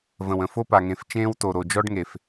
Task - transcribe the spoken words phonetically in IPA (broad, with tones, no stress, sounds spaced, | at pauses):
v ə̃˨ w ə̃˨ f o˦ p a˨ ŋ ẽ˨ f t͡ʃ ẽː˦ w t o˨ ɾ o˨ d͡ʒ ɔ˦ ɖ ŋ e˨ f